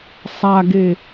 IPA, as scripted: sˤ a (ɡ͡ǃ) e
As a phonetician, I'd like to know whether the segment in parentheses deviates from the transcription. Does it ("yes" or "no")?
yes